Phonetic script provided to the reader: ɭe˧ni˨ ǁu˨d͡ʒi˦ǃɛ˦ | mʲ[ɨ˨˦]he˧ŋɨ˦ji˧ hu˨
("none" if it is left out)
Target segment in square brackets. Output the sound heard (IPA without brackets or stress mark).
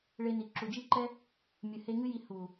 ɨ˨